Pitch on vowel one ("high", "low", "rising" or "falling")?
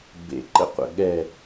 low